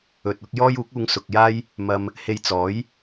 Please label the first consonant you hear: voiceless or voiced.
voiceless